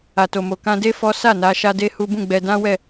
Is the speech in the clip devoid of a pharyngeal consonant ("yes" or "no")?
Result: yes